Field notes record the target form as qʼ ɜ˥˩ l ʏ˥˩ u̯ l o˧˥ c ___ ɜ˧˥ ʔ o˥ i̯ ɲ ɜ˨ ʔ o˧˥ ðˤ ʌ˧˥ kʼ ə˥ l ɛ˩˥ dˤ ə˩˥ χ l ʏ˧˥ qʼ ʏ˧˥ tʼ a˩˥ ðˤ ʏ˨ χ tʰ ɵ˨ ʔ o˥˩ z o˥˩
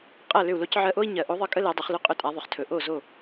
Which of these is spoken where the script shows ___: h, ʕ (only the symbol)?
ʕ